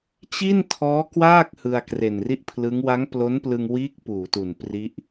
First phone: t͡ɕ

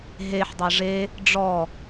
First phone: ɦ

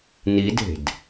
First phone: n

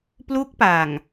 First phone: p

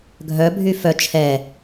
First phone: ɡʱ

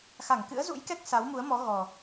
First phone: x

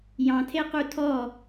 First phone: j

